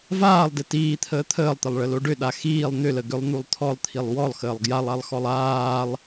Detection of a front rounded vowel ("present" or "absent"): present